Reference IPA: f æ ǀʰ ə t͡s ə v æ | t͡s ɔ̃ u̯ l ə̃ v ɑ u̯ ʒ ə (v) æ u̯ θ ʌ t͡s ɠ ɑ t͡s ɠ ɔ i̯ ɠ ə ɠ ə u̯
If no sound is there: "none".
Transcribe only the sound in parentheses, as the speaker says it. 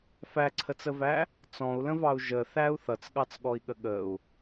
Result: θ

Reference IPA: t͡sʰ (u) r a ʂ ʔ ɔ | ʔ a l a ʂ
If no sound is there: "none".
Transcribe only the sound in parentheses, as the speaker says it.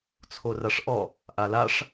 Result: o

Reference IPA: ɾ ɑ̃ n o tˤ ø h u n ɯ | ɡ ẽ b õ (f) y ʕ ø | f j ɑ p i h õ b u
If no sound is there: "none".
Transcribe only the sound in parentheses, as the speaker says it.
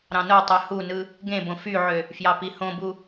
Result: f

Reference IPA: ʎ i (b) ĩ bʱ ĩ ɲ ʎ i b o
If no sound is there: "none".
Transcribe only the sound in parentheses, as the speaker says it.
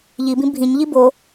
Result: b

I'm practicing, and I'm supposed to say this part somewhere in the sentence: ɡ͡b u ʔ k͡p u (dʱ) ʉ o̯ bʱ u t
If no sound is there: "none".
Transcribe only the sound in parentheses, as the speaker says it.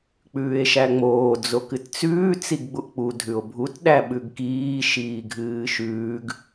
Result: dʱ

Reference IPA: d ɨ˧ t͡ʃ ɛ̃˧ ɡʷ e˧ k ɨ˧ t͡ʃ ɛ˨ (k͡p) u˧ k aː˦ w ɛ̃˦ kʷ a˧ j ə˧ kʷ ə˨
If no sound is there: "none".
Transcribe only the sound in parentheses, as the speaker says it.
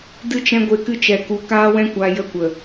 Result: k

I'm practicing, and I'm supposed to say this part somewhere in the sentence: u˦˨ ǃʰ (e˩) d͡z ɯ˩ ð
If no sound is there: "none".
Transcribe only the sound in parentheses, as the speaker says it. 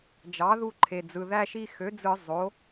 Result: e˩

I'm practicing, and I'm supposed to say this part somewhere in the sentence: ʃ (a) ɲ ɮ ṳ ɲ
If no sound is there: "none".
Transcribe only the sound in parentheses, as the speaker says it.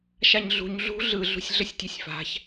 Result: a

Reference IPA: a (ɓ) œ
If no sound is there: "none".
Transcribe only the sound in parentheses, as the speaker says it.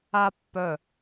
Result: pː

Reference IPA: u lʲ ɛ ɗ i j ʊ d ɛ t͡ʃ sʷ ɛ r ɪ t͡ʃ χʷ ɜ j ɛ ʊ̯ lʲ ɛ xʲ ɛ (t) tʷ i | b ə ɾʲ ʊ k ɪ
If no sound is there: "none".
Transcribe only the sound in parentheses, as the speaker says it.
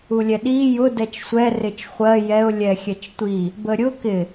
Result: t͡ʃ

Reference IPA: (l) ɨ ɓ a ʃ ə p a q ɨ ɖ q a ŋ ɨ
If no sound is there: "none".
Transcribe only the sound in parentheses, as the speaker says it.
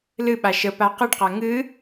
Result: l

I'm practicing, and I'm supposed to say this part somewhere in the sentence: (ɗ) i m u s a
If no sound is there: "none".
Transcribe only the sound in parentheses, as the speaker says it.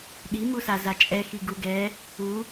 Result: ɗ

